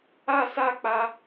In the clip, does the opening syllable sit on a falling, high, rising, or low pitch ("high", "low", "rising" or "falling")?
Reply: falling